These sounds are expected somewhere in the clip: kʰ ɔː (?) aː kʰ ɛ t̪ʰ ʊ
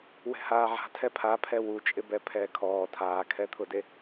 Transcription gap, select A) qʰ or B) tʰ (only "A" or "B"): B